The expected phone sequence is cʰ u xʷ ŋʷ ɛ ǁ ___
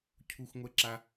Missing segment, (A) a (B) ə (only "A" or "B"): A